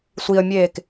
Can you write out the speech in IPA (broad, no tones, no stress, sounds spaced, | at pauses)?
sʷ i ə̯ mʲ eː k